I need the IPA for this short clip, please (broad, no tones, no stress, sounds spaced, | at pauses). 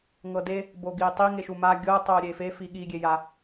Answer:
ŋ ɤ d e | b o ɡ iː tˤ i ŋ e ʃ u m a ɡʲ ɤ tˤ oː ɾʲ e f e f i ɠ i ɡʲ e j a